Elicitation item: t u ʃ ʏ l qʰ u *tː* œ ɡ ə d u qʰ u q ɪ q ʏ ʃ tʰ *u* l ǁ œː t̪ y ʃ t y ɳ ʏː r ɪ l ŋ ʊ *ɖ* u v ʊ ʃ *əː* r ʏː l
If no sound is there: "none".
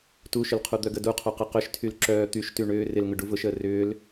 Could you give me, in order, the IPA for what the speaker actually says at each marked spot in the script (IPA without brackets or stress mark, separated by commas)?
d̪, y, ɖ, əː